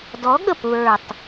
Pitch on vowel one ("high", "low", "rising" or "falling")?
rising